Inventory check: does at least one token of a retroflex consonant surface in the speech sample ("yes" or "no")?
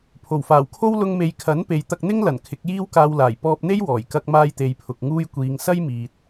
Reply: no